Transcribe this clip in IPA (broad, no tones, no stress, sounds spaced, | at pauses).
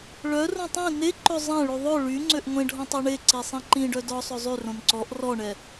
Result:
ɭ œ r õ tˤ ĩ n e ǃ ɵ zˤ ɛ̃ ɭ y ðˤ ɵ ɭ y ŋ͡ǀ ø ʔ ŋʷ ẽ ɖʱ ɔ̃ tˤ o ɳ e ǀ i sˤ ĩ ǃ ĩ ɖ œ d ɔ sˤ ø zˤ y r õ n ǀ ɔ ʔ r ɔ ɳ ɛ